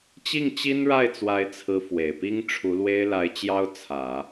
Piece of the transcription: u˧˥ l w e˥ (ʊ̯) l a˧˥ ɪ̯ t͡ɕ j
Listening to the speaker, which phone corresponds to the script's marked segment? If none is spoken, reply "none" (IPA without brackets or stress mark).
ɪ̯